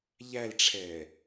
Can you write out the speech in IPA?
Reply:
ʎælʈ͡ʂʰɛː

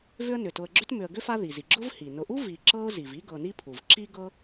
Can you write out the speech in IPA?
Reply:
vʏ˦ə̯nʏ˩tʊ˨ə̯ɡ͡ǁʏ˥t mʏ˨ə̯ɡʏ˥fa˦ ði˩zi˩ɡ͡ǁʊ˥vhi˩ nʊ˨ʔu˥ vi˨ǁɤ˦ʊ̯ zi˩vi˦ ɡɤ˨ni˥pʰu˩v ǁi˥ ɡɤ˦

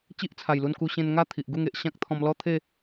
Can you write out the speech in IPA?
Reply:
t͡ɕi˦ʔt͡sʰa˨˩jlu˧nku˧ ɕẽ˧nŋa˥˧ t̪ʰi˨ʔɡu˥˧ŋe˨ʔ ɕã˦k̚t̪ʰɔ̃˧mlɔ˦t̪ʰe˥˧

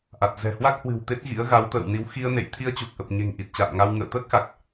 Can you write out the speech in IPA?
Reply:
ʔa˨˩t̚ zɛ̤˨˩ hwa˦˥k̚hwɨ̤˨˩w t̪e˦˥t̚ɣḭ˧˥ə̯ ɣa˨˦wt̪ə̰ː˧˨w ni˨˦w xi˧ə̯nḛ˧˨j t̪ʰi˧ə̯t͡ɕu˨˩k̚ʔə˨˩p̚ɲe̤˨˩ŋ ʔi˨˩t̚t͡ɕa̰ː˧˨mŋa˧w ŋə̰ː˧˨t̪əː˦˥k̚xa˨˩k̚

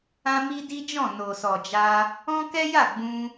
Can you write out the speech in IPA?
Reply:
ã˦mi˦di˦d͡ʒɔ̃˦˨ no˨sɔ˨d͡ʒa˧ | ɔ̃˦kɛ˦ja˦˨ ɡ͡bũ˧

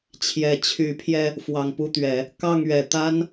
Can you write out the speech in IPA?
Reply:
t͡ɕʰjɛ˨˩ t͡ɕʰy˨˦pʰjɛ˧ | fwɑ˨˩ŋpu˥˨t̪ɥɛ˨˦ | kɑ˥˨ŋɥɛ˨˩ t̪a˦n

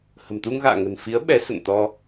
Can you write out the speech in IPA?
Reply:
hə̤˨˩mt̪u˧ŋɣa̰ː˧˨ ŋə̤˨˩nfi˨˦ə̯ ɓɛ˨˦sə̰˧˨nt̪ɔ˧

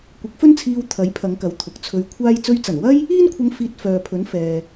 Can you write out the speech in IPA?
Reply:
kʷɪ˨˥k̚fɵ˥nt͡sʰiː˧w t̪ʰɐ˨˥jpʰɐ˨˧ŋkɐ˨˥w t̪ʰʊ˨k̚t͡sʰɵ˧ɥkʷʰaː˥j t͡sɵ˧ɥt͡sɐ˨˩nwɐ˥j | iː˥nkʷʰɐ˧ŋ fiː˧t̚fœː˨pʰɵ˨˥n fɛː˨

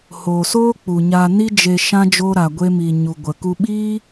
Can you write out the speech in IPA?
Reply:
hoː˨soː˦k͡pu˨ɲa˧ ni˦d͡ʒe˧ ʃã˦d͡ʒoː˦ ɾa˧ɡʷe˦mi˧ ɲu˨ɡʷə˨ ku˧ɓiː˦

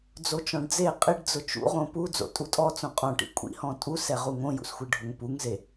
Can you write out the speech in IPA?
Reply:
d͡zot͡ʃɔ̃ɖd͡ze qʼɪɖ d͡zʊt͡ʃṵʁõ pu d͡zo̰tʼutʼɔ t͡sõqʼɔ̃ʈḭ kʷʼḭhɔ̃ tʼusɛʁu ŋõjṵsxʷi ɖʱoŋpuŋze

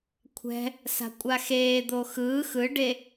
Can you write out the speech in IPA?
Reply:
kʷʰɛ̤ | sa̤kʷʼaxeːd̪o xɯː xɯɖe

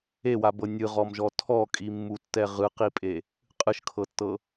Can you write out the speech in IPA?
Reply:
ewabɤ nʲɯʁɔmʒɔ tʰɔkʼimːutːɛ ʁɯqipʼe | qʼɯʃkʰɤtːɤ

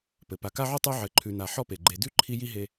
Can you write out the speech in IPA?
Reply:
pɘ˩pa˨ka˥ʕu˥ tˤʉ˦ʕɘ˨ǃʰʉ˨na˨ ħɔ˦pe˩ɡ͡ǃe˨ dʉ˥ǃʰi˦ ji˥ɦe˦

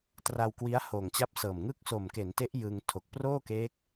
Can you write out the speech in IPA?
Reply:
tra˧wkwi˦˥a̯ hoː˨˩ŋt͡ɕa˦˥p̚sɤː˨˩mŋɯ˥˩k̚ so˨˩mke˩˦nte˦˥ʔ jɯ˧ŋ tʰo˨˩k̚proː˥˩keː˦˥k̚

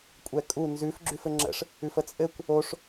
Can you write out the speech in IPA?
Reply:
kʷʼɛkʼu nzʉf ɡ͡ǁʉfɘŋ͡ǁə̰ʂ | ʉfət͡sʼɘkʷ | oʂ

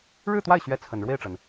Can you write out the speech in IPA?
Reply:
ɻɻ̩˥˧t̪wa˥˩ɪ̯ɕɥɛ˧˥ t͡sʰə˨˩n ɻwe˥˩ɪ̯ʈ͡ʂə˩n

